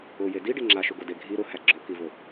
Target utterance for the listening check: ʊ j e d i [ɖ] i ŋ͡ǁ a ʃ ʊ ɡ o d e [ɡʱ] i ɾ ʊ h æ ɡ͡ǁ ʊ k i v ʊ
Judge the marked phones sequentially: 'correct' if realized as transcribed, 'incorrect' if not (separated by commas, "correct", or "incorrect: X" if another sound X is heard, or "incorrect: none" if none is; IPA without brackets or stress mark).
correct, correct